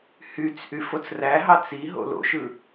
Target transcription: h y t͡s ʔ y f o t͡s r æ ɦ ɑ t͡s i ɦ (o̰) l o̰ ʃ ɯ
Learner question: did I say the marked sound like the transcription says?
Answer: yes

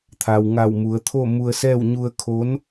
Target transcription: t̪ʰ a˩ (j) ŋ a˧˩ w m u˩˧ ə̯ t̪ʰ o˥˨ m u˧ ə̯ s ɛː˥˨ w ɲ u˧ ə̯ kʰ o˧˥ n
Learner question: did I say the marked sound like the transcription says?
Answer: no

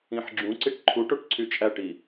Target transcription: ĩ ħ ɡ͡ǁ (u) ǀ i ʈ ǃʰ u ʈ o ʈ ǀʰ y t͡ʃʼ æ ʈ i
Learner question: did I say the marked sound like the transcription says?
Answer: no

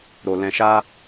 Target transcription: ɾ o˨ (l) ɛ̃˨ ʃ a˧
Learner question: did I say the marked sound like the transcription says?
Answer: yes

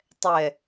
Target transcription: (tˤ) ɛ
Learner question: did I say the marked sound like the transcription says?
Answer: yes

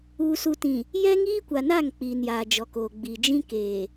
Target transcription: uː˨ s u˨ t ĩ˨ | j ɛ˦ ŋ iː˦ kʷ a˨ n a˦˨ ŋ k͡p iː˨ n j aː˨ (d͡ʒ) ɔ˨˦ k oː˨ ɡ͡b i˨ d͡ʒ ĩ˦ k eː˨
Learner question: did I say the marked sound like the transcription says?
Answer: yes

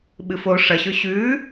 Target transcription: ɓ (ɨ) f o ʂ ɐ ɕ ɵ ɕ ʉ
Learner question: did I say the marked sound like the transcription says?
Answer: yes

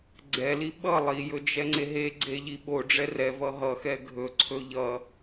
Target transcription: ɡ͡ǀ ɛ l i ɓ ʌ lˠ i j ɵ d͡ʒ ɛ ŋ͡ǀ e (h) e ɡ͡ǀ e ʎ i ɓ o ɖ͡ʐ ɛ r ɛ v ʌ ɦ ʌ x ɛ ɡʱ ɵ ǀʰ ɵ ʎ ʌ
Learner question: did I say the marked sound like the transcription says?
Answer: no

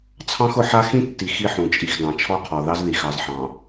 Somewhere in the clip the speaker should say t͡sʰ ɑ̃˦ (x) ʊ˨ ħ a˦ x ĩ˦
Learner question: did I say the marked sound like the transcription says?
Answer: yes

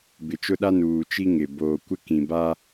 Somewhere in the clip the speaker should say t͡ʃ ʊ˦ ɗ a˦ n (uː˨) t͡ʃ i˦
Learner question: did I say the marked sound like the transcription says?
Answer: yes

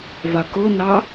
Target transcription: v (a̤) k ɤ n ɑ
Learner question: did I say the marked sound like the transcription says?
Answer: no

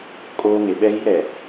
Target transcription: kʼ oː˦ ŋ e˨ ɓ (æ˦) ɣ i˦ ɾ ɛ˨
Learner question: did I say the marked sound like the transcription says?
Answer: no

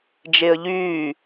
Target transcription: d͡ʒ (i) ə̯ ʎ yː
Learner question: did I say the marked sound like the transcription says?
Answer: no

